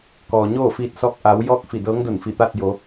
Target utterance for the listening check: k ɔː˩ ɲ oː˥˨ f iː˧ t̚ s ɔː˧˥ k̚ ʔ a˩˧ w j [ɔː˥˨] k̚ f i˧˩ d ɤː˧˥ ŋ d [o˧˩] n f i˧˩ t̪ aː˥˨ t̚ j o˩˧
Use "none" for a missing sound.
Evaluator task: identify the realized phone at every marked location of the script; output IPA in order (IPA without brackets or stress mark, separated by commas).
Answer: ɔː˥˨, o˧˩